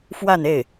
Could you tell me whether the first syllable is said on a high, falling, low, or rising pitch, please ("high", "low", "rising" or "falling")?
falling